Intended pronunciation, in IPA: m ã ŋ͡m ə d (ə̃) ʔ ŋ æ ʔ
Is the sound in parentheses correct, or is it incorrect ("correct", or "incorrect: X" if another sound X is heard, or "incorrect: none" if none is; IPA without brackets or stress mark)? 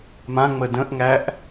correct